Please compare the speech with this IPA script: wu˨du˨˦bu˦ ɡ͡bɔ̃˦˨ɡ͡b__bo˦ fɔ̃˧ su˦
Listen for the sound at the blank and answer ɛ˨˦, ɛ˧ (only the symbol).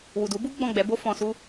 ɛ˨˦